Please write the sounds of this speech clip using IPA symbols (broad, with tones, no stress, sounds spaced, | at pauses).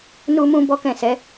n u˧ m ũ˧ b ɔ˦ k ɛ̃˦˨ s ɛ˨˦